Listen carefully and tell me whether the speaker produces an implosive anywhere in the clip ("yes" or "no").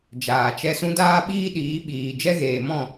yes